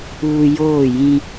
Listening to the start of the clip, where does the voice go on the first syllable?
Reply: low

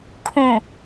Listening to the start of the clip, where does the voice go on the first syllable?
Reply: low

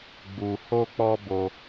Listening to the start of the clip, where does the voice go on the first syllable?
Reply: low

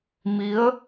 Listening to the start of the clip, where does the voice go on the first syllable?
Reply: rising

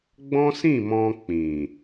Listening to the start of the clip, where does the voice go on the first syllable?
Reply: high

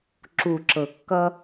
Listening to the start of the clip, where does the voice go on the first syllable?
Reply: low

